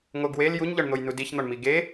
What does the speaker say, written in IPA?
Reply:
ŋoɡwel juɲʎɒɳn̪ojnu diçn̪ɒɳmi ɡe

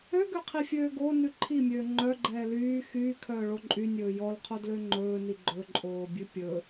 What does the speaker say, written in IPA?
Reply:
øɡøqʰifʲøː ɡo nʉǃʰimʲøː ŋ͡ǃœɡ͡ǃɛː lyː xyː kʰœːɭoǃʼy nʲɵːjɔlqʰo dløŋ͡ǃɵːni ɡ͡ǃɵǃʼoːbʲʉ pʲɵ

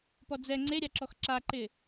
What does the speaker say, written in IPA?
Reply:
pɔd͡zɛ ŋ͡ǀeɾʲaǁɔx ǁaǃɪ

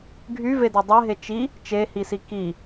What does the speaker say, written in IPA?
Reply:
ɡʱyvede dˤɛɦe t͡ʃi | t͡ʃehisi ki

